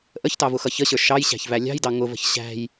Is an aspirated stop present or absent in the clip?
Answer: absent